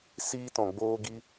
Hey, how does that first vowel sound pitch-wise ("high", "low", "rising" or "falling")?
high